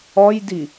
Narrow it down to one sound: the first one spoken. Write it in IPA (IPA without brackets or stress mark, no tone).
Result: ɔ